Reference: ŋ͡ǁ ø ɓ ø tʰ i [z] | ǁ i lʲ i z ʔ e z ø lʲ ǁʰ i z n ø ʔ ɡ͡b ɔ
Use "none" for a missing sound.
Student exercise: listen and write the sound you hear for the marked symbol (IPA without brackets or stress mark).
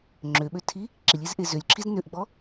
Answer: none